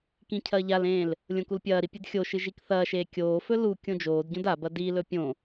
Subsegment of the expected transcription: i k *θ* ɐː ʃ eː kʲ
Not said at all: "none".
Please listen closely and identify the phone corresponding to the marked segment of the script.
θ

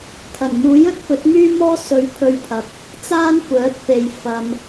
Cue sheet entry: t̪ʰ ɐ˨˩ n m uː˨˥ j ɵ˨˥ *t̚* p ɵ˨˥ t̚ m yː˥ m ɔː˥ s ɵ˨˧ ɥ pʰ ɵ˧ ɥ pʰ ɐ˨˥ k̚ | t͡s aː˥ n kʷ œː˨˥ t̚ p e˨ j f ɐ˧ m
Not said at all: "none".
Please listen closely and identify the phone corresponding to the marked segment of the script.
t̚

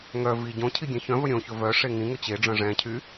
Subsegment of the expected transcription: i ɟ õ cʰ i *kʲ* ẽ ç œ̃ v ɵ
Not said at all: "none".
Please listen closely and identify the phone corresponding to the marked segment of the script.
ɡʲ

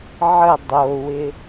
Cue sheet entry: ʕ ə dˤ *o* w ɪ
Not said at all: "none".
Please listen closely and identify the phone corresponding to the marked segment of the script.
o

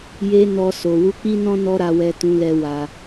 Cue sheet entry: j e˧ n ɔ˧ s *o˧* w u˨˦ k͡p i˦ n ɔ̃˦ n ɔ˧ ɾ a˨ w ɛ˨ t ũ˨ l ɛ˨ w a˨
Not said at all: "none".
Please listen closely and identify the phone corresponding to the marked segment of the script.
o˨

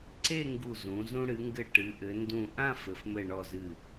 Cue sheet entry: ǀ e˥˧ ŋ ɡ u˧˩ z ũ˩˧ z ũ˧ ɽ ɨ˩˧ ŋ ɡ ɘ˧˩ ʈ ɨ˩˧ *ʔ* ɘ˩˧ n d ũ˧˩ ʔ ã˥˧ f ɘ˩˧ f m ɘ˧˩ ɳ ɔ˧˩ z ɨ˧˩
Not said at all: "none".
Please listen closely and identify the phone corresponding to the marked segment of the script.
ʔ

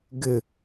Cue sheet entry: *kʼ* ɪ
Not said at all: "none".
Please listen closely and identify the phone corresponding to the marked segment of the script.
ɡ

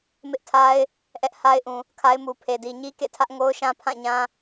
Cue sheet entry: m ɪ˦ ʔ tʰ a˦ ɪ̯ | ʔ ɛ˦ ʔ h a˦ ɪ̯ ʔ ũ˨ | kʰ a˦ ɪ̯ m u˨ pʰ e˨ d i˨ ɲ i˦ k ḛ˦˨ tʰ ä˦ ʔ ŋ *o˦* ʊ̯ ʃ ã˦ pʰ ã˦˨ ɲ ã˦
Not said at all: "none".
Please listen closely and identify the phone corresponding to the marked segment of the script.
o˦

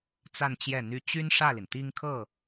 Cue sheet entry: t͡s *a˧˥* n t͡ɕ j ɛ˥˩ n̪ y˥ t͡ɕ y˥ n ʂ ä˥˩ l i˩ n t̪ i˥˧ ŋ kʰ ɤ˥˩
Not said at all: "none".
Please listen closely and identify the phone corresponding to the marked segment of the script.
a˥˧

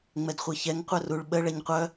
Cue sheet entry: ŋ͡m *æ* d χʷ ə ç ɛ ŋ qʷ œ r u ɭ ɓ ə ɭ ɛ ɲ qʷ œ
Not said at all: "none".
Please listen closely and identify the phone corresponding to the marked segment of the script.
ɛ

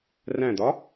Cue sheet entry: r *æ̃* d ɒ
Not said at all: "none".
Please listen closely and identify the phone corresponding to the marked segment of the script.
æ̃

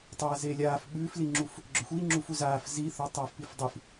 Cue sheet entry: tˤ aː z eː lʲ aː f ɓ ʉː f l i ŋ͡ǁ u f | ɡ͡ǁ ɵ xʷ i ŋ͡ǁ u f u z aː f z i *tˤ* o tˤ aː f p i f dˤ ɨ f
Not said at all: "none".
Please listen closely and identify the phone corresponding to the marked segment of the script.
θ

